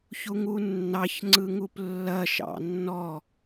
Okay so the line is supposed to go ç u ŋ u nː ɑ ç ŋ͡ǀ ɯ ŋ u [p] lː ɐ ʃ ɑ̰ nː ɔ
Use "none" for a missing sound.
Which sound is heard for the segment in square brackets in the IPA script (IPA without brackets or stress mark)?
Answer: p